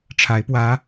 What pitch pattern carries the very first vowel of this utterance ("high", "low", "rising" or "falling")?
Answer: rising